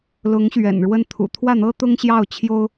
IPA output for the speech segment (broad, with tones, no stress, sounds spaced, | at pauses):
l ʊ˧˥ ŋ ɕ ɥ ɛ̰˨˩ n ɻ w ə˥˩ n t̪ʰ ṵ˨˩ t̪ʰ w ä˥˩ n̪ ɤ˥ t̪ ʊ˥ ŋ ɕ j ɑ˥˩ ʊ̯ t͡ɕʰ j o˥ ʊ̯